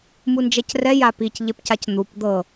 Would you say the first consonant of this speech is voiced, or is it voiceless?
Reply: voiced